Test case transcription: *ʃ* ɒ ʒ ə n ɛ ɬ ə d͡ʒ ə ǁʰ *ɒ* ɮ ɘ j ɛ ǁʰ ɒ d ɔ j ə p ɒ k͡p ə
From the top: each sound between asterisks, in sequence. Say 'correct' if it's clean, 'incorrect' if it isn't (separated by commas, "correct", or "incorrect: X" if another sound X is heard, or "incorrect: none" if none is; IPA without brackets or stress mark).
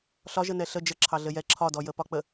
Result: incorrect: ɬ, incorrect: ɑ